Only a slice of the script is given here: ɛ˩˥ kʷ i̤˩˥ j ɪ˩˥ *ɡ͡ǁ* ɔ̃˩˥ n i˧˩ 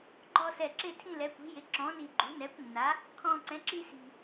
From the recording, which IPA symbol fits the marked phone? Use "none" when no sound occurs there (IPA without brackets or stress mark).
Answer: ǁ